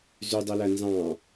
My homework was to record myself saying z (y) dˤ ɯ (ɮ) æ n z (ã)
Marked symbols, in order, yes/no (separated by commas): yes, no, no